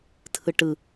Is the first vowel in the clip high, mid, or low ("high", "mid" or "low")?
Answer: high